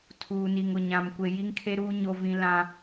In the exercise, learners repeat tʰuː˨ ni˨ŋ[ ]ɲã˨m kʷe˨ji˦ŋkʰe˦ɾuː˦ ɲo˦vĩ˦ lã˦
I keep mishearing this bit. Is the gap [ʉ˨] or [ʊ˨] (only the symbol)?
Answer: ʊ˨